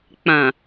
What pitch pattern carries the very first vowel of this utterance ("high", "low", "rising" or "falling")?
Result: low